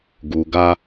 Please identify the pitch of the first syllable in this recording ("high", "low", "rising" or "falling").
low